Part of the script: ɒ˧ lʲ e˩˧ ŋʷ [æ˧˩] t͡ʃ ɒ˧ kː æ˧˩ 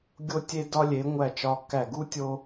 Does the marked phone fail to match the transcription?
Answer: no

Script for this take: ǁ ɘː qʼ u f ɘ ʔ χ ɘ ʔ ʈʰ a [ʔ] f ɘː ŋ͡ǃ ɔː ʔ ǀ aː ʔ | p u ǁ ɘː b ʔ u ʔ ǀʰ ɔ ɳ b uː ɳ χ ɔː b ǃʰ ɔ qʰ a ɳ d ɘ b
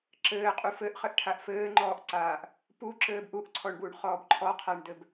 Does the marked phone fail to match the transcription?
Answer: no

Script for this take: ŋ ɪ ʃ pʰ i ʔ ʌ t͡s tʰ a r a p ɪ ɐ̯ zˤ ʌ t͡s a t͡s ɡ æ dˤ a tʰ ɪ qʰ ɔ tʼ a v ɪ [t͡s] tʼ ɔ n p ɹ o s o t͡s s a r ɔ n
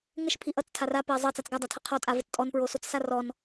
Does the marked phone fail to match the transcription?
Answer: no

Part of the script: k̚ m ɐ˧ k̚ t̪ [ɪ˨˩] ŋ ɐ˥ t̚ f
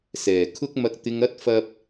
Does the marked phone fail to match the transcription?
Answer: yes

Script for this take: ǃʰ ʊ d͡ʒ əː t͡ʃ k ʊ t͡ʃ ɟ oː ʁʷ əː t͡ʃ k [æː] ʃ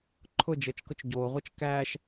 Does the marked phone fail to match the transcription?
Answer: no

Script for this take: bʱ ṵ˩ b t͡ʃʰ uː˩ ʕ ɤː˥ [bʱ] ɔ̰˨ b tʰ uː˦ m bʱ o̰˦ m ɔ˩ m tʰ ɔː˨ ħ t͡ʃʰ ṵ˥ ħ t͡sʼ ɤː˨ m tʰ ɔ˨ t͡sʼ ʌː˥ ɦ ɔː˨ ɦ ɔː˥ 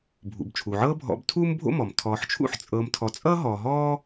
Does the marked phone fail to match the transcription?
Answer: no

